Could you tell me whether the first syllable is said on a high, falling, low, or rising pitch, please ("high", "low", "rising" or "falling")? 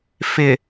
low